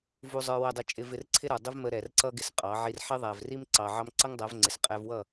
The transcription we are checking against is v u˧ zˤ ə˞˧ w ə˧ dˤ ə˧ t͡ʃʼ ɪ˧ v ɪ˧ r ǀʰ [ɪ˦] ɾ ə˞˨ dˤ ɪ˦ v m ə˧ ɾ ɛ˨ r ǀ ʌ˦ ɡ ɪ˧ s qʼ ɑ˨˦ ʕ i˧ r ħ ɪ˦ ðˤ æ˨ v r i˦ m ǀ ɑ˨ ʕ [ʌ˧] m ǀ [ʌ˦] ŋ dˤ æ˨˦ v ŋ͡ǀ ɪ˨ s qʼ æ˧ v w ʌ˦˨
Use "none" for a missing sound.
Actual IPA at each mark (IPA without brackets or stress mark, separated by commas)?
ɪ˦, ɑ˧, ʌ˦